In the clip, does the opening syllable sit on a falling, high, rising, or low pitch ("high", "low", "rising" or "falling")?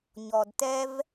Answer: low